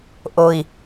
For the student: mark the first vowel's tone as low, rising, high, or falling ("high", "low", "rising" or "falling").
low